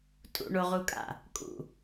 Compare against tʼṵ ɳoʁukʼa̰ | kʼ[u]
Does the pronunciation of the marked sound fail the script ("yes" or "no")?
yes